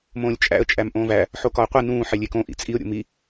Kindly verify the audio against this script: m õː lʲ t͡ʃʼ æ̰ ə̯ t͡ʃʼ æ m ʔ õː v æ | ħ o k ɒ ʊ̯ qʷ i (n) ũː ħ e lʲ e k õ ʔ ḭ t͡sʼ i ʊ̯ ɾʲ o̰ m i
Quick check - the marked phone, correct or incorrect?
correct